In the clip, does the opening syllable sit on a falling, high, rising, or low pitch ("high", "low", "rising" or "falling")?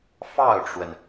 falling